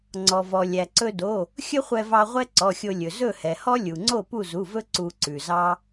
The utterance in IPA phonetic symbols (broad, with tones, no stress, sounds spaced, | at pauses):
ŋ͡ǀ ɔ˩ v ɔ˩ lʲ æ˩ ǀ ɵ˧ d o˩˧˩ | xʲ ɵ˥ χʷ ɛ˧ v ɑ˧ ʁʷ ɛ˥ ǀ ɔ˩˧˩ xʲ o˧ lʲ ɵ˩ z ɵ˥˨ h ɛ˩ h ɔ˥ lʲ u˩ ŋ͡ǀ o˥˨ p u˥˨ z u˩˧˩ v ɵ˥ ǀ u˧ ǀ ʉ˩ z ɑ˥